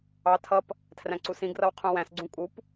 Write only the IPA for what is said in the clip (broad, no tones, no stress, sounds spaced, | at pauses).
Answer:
ɑ tʰ ʌ p | tʰ r æ̃ ǀ u s ĩ ɡ r ʌ w qʰ ũ w æ̃ s ɡ͡ǀ ũ kʼ u p